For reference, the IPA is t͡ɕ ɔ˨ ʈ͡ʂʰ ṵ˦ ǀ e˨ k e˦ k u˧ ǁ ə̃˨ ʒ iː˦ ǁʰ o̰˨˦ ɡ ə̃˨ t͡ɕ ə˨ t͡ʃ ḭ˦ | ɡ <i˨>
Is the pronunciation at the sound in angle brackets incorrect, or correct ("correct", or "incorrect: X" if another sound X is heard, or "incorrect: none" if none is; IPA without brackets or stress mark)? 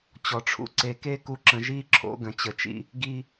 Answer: incorrect: i˦